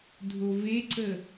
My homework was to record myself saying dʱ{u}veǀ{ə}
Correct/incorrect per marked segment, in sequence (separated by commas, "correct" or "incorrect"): incorrect, correct